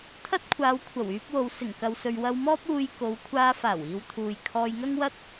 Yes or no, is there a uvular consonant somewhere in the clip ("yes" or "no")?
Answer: no